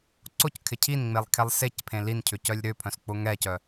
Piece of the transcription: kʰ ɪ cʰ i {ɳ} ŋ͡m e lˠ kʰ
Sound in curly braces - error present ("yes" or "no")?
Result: yes